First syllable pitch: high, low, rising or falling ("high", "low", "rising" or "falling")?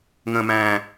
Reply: low